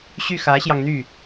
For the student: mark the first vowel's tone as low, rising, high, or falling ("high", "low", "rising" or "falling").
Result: falling